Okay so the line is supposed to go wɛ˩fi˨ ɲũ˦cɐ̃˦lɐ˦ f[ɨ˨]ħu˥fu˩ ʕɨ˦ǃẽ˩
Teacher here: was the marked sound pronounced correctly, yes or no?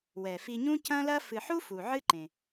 yes